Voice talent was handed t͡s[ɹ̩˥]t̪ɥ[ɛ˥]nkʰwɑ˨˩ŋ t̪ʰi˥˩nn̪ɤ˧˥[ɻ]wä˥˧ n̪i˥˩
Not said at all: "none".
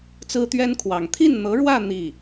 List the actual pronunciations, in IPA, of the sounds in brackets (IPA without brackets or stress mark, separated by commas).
ɹ̩˥, ɛ˥, ɻ